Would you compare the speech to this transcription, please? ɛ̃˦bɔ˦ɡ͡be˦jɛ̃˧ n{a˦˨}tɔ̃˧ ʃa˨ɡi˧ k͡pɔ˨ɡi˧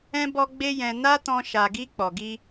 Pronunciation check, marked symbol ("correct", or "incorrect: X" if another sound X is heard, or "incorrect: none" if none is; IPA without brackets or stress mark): incorrect: a˦